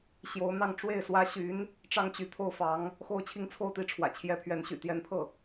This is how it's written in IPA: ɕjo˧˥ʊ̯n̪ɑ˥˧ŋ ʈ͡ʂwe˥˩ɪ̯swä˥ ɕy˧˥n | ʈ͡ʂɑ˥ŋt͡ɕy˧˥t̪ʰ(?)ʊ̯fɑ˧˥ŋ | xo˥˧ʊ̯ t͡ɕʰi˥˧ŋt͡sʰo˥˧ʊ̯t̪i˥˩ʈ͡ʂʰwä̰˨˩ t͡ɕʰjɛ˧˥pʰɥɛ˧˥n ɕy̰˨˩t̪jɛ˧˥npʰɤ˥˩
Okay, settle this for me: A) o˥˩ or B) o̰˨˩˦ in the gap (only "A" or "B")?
A